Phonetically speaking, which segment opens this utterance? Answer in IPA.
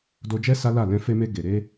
d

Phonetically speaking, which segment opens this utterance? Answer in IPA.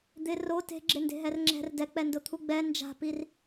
d̪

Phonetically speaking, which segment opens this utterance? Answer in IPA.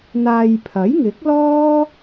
n̪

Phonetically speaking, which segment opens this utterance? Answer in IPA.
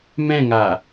m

